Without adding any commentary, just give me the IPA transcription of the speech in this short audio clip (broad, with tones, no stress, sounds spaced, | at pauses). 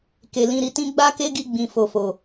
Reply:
k e˨ l ĩ˧ ɾ i˦ t ĩ˦ ɡ͡b a˦ k e˦ ɡ i˧ ɡ͡b ĩ˨ f o˨ f o˨